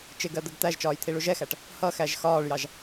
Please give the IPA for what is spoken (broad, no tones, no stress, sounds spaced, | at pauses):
t͡ʃ ɪ ɡ ɜ d̪ ə ɡ t̪ æ ʒ t͡ʃ ɒː j t̪ʰ i ɭ u ʒ ɛ x æ ʈ | h ʌ x æ ʒ x ɒː ɭ j ɑ ʒ